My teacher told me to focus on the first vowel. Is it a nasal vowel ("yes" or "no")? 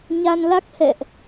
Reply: no